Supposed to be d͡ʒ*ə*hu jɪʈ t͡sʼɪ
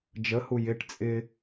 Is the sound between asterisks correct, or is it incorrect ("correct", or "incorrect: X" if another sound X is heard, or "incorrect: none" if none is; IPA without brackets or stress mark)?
correct